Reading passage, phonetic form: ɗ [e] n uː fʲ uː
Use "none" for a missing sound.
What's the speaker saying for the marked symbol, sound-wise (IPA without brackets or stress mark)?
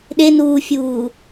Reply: e